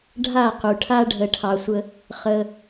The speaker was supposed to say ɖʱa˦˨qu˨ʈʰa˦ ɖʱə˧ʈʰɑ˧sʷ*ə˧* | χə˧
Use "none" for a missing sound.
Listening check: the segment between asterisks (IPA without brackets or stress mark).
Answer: ə˦